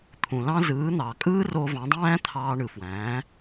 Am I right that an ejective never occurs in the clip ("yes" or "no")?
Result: no